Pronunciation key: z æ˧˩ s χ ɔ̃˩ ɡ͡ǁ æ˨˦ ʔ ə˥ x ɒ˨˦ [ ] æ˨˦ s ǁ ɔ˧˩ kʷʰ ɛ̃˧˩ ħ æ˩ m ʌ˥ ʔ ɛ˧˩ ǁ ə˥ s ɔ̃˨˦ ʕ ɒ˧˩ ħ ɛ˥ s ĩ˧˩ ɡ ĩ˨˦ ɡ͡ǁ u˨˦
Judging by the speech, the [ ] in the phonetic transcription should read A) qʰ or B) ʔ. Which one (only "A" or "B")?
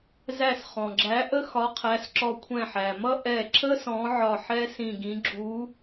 A